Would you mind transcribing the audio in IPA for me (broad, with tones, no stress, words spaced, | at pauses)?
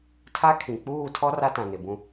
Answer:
tʰa˦kʰĩ˨ k͡puː˦˨tʰɔ˦ ra˦tã˨nɪ˨bũ˦